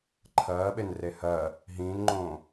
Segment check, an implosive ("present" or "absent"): present